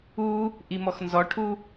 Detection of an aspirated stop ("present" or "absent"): present